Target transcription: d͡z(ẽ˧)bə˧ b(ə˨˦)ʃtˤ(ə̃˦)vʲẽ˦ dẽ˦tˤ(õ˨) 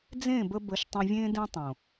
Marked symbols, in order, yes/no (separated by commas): no, yes, no, yes